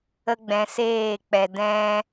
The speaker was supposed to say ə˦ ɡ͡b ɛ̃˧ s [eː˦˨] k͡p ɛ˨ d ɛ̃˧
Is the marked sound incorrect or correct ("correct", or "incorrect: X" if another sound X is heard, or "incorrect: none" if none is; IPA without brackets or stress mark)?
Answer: correct